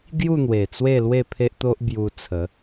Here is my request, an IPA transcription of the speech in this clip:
ɡ j u˥˧ n̪ w e˨˩ t͡s w e˥˧ l w e˥˧ pʰ e˦ ʔ t̪ o˦ ʔ b j u˧ t͡sʰ ə˨˦

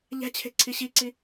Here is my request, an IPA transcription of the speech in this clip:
ʎ æ̤ t͡ɕʰ e̤ ǀʰ i ɕ i ǀ i

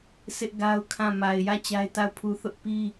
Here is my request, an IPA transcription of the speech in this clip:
sʰ ɪ˦ ʔ ɡ a˦ ʊ̯ kʰ ã˦˨ m a˨ ɪ̯ j ä˦˨ t͡ɕ a˦ ɪ̯ t a˦˨ ʊ̯ pʰ u˦ θ ʊ˦ ʔ p i˦

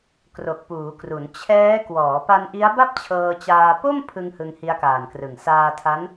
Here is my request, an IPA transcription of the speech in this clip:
k r o˨˩ k̚ p uː˩˦ k r u˩˦ n t͡ɕʰ ɛː˦˥ k w ɔː˩˦ p a˧ n ʔ i˦˥ a̯ b a˥˩ p̚ t͡ɕʰ ɤː˧ t͡ɕ aː˧ p o˥˩ m pʰ ɯ˧ ŋ h ɯ˧ ŋ h i˦˥ a̯ k aː˨˩ n k r ɯ˨˩ ŋ s aː˧ tʰ a˦˥ n

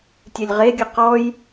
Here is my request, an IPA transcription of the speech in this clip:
tʲ ɛ lʲ ʁ e ɡʲ ɘ q ɔ j

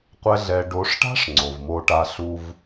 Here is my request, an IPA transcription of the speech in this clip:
qʷ ɛ˦ ɮ ɛ˧ ɖ o˨˦ ʂ ʈ a̤˦ ʂ ŋ͡ǀ o˨ v m o˧ ʈ a˧ ɬ u˧ v

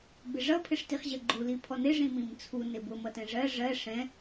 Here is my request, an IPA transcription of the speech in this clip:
b ɪ ʐ ʌ pʰ ɪ ʂ t i χ ʑ ɜ ɡ͡ǃ u l i pʰ ɔ n ɪ ʐ ĩ m ĩ m t͡sʰ u n ɪ b ʊ m ʌ t ɛ̃ ʐ ɜ ʐ ɜ ʂ ɛ̃

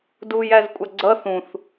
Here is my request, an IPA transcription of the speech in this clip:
d uː j æ z kʷʼ ɑ ɡ͡ǀ ʌ θ ũ θ

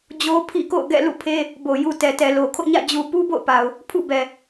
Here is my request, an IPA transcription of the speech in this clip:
d͡ʑ o˦ pʰ ḭ˦˨ k o̰˦˨ ʊ̯ ɡ ɛ̰˦˨ l ṵ˦˨ pʰ e˦ | b o˨ j u˨ t ɛ˨ t ɛ˨ l o˨ kʰ o̰˦˨ ɲ ä̰˦˨ d͡ʑ u˨ p u˦ b o̰˦˨ ʊ̯ p a˨ ʊ̯ | pʰ ṵ˦˨ b ɛ˨

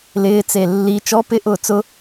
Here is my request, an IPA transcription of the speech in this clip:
l ɪː t͡s e lː i t͡ʃ ɔ p ɪ ʔ ʊː t͡s ʊ

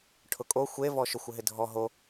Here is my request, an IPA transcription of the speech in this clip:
ʈʰ ʊ kʼ o xʷ e v ɔ ʃ ʊ xʷ ɪ ɦ ɪ dʱ ɔ ɦ o

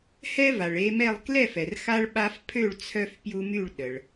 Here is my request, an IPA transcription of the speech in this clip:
h ɛ˦ v a˩ ɭ e˦ m ɛ˥˨ lˠ k l ɛ˥˨ f ɛ˩ r x a˦ ɭ ɓ a˦ f pʰ ø˥˨ ɭ t͡sʰ œ˦ f p j u˦ m y˥˨ ɭ ɗ ə˩ ɭ

